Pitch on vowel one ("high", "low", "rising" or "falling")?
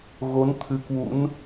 rising